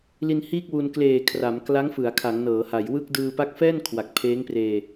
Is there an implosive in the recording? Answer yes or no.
no